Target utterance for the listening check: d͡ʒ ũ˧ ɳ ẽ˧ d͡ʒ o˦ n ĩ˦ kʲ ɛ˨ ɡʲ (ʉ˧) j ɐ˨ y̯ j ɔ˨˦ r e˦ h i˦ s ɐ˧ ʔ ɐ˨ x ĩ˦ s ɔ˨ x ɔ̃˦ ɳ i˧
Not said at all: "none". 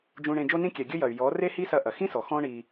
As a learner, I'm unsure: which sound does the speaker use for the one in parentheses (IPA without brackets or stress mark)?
ɘ˧